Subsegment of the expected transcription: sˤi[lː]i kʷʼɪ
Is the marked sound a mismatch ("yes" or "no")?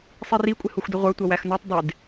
yes